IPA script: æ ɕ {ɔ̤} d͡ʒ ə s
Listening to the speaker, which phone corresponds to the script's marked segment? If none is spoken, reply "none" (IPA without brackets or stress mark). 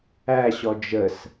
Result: ɔ